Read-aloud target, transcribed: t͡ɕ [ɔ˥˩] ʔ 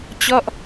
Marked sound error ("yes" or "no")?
no